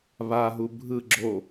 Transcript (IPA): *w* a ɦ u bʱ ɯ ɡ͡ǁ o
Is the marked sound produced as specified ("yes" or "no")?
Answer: no